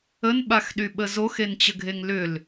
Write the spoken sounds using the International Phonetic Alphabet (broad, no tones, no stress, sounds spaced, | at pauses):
ə n ɓ a x ɗ y ɓ ə z o x e n t͡ɕ ə ɡʱ e ŋ l ʏ l